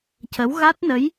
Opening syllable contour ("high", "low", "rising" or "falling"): rising